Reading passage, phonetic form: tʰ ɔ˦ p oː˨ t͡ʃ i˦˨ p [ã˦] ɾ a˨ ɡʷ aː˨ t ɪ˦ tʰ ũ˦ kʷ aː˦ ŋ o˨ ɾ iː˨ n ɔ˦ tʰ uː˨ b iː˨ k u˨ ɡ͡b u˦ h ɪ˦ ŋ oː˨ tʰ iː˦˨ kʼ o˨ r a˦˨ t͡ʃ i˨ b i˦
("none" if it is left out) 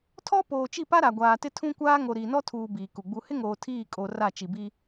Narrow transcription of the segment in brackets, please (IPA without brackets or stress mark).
a˦